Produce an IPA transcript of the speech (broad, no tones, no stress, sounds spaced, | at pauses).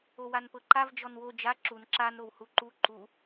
o w a n p ɤ ǃ a v d͡ʒ ɔ n w o d͡ʒ a ǁ u n ǁ a n ɾ o w h u ǃ u ǃ u